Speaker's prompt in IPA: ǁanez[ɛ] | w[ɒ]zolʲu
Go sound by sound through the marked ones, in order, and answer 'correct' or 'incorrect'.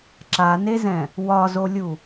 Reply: incorrect, correct

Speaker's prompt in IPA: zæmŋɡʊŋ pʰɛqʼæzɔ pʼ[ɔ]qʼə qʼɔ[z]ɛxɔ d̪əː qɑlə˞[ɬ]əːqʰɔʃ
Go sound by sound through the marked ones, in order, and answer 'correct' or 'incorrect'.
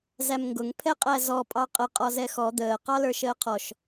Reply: incorrect, correct, incorrect

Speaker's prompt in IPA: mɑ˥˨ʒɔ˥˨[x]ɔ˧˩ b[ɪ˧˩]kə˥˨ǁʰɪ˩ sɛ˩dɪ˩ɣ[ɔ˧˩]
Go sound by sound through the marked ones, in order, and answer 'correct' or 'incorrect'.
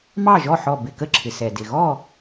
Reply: incorrect, correct, incorrect

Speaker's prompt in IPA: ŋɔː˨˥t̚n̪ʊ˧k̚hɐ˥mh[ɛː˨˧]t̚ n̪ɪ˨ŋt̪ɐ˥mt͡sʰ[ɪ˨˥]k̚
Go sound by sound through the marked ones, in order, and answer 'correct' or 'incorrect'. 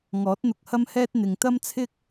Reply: incorrect, incorrect

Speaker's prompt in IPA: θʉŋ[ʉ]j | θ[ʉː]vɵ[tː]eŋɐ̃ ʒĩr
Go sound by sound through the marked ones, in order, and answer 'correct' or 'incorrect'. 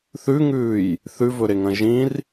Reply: incorrect, incorrect, incorrect

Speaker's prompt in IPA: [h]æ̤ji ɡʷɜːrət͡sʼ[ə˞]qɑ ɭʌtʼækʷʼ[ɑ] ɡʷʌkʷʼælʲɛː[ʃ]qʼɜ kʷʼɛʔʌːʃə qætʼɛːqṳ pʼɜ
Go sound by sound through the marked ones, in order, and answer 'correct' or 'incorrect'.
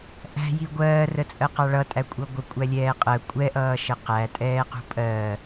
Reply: incorrect, incorrect, incorrect, incorrect

